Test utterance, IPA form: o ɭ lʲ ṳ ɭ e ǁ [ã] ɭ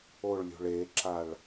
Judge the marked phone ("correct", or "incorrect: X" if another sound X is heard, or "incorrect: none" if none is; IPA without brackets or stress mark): incorrect: a